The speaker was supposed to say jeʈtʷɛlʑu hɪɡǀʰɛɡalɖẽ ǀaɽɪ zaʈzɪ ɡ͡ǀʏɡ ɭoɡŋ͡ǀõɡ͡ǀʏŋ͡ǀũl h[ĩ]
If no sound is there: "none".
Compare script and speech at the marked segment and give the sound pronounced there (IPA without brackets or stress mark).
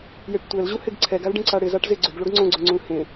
ẽ